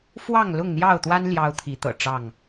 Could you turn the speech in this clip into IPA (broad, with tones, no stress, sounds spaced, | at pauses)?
f w ɑ˥˨ ŋ l ʊ˥˨ ŋ n̪ j ɑ˥˨ ʊ̯ t̪ w a˦ n l j ɑ˦ ʊ̯ t̪ʰ i˨˦ t̪ ɤ̰˨˩ ʈ͡ʂ ɑ˥˨ ŋ